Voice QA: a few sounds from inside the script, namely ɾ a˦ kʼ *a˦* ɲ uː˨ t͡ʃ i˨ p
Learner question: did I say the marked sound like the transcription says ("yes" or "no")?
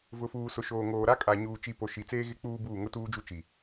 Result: no